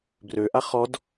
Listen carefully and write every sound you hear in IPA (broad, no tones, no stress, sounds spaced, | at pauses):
b r ø ʔ a χ ɔ d